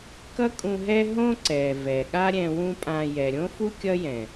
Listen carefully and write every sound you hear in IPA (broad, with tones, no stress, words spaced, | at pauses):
kʌ˦kʼũ˧ɦɛ˦ɦõ˦ ǀɛ˨vɛ˨ ɠa˦ɾʲɛ̃˧ wũ˦pʼã˧ jɛ˨ɾʲõ˦fu˦ kʲʌ˦jɛ̃˨